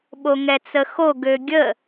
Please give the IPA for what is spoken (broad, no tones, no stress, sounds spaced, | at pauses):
ɓ o ŋ ɛ t͡s ə x o ɡ ø ɡʲ ə